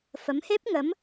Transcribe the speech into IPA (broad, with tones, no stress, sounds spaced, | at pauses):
f ə˨˦ m h e˦˥ p̚ ŋ ə˨˦ m